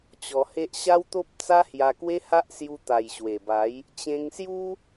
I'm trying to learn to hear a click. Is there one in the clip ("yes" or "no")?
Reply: no